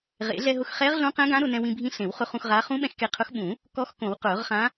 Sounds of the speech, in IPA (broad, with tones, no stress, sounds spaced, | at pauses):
ʁ ḛ˨˩˦ ɮ ɛ˧ ɦ ʊ˧ x χ ɛ˧˥ ʁ ɮ õ˧˥ q ɛ̃˧˥ ɡ ã˧˥ ɾ ʊ˧ n ɛ̃˧ w ĩ˧ bʱ ĩ˧˥ ɬ ẽ˨˩˦ w χ ʊ˧˥ χ ũ˧ x ʁ aː˧˥ χ ũ˧˥ ɓ ɛ̃˧ x k e˧ qʰ ʊ˧˥ x ɓ ũ˨˩˦ | k ɔ˧˥ x k õ˨˩˦ w q ʊː˨˩˦ ʁ χ ã˧˥